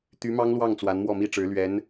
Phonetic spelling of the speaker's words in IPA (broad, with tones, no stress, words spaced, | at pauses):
t̪y˧˥mɑ˥ŋlwɑ˥˩ŋ t͡swa˧˥nmwɔ˥˩mi˥ʈ͡ʂɻ̩˧˥ lɥɛ˧˥n